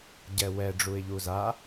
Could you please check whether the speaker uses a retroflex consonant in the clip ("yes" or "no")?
yes